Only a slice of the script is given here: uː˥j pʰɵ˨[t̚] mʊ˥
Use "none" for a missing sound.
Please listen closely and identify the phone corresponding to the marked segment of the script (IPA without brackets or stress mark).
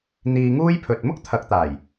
t̚